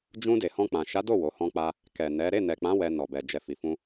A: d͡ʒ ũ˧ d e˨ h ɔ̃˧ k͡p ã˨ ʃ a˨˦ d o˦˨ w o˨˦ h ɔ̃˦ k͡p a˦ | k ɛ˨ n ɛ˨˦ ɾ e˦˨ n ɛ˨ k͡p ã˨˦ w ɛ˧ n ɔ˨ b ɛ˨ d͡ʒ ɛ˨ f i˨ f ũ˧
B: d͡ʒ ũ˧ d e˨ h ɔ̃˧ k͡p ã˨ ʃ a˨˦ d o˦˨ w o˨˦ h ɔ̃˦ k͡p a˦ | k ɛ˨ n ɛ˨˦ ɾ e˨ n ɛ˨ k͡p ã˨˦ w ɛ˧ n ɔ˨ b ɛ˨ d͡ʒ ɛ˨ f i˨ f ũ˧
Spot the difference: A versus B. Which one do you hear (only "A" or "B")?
A